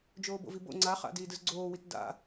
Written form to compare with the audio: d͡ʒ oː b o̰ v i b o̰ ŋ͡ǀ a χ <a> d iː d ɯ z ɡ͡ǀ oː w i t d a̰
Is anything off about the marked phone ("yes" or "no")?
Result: yes